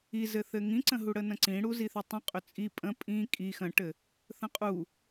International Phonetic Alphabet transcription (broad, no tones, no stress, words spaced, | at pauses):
izɘθɘ ŋĩǀə̃ɦu ɽənə̃ǀĩ ɽuziθʏtˤə̃ qʼʏt͡sʼi pʼə̃ pʼĩ kʼi xə̃ʈɘ | θə̃qʼu